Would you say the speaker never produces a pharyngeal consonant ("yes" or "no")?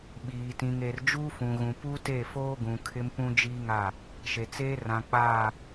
yes